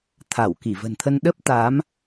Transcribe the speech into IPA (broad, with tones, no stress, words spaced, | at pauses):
t̪ʰa˧˩wki˧˩və̤˨˩nt̪ʰə˧n ɗə˦˥p̚t̪a˨˦m